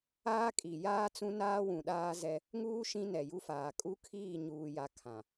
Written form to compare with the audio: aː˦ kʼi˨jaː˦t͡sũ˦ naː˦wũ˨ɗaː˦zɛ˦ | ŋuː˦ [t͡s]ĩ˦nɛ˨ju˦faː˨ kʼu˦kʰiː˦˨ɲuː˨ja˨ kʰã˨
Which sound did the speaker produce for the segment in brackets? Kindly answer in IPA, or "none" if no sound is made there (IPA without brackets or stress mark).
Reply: ʃ